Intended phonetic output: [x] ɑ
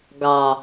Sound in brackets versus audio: incorrect: ɡ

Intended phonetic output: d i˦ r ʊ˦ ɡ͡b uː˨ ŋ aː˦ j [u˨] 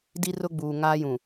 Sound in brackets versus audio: incorrect: ũ˨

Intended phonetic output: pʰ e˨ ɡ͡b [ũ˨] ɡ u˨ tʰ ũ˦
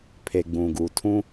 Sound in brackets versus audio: correct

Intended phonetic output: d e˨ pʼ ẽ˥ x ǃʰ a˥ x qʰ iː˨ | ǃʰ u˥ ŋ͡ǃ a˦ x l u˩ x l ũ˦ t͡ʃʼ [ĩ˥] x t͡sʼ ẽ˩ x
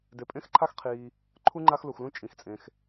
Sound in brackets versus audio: incorrect: ĩ˩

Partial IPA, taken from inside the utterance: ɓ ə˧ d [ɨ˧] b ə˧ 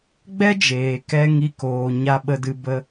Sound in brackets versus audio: correct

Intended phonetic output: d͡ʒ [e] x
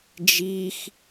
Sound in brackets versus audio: incorrect: i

